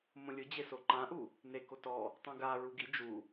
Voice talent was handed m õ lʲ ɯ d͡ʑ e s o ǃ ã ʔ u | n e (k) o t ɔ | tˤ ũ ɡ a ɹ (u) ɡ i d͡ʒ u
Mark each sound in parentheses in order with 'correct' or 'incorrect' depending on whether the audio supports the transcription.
correct, correct

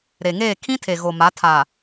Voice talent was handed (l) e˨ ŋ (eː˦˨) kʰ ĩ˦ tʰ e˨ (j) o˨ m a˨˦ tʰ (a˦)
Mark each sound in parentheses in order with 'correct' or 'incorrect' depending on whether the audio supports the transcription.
incorrect: ɾ, correct, incorrect: ɣ, incorrect: a˨

